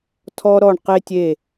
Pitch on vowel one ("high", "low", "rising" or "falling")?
high